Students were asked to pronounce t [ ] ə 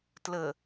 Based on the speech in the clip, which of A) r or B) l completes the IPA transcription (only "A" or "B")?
B